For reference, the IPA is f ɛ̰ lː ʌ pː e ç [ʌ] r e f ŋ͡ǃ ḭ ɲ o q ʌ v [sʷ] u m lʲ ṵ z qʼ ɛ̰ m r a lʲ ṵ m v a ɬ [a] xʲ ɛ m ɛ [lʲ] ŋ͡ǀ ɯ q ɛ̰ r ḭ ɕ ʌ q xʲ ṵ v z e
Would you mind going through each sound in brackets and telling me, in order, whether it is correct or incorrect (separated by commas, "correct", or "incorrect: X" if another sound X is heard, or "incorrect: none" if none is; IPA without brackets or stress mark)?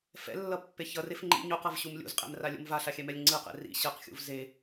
correct, incorrect: ɕ, correct, correct